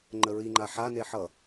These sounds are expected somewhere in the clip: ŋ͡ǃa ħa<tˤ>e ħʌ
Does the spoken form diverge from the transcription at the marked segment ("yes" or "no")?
yes